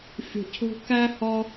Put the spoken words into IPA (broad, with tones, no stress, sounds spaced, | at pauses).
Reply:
fʲ o̤˨ cʰ o̤˧ k æ˦ h ɒ˦